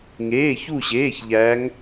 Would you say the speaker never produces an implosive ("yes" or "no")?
yes